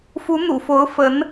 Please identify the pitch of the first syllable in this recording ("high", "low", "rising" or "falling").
rising